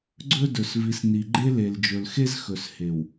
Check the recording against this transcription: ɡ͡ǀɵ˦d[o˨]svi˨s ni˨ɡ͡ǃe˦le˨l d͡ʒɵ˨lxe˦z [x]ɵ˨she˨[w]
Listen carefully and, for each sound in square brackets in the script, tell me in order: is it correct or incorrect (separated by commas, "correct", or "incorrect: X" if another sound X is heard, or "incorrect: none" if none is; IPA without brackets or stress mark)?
incorrect: ɵ˨, correct, correct